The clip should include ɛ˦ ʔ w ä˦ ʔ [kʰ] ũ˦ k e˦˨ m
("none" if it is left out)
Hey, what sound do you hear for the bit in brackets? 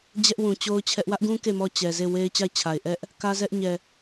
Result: ɡ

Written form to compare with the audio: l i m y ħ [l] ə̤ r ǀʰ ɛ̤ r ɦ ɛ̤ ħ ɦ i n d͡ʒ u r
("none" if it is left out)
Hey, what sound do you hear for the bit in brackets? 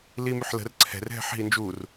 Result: l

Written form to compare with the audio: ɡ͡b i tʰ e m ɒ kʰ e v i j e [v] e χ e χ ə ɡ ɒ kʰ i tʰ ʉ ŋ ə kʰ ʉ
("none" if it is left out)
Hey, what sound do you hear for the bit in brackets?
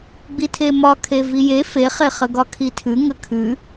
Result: f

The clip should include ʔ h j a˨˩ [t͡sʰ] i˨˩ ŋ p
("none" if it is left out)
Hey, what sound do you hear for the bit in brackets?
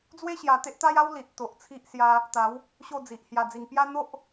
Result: d͡z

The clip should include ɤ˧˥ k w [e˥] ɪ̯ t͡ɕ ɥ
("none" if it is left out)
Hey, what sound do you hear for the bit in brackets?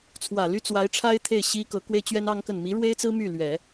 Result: e˥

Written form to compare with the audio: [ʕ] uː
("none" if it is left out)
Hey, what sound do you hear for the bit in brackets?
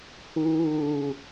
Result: h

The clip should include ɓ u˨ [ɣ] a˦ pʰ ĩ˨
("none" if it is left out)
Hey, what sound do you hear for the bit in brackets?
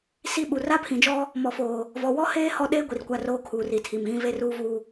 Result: r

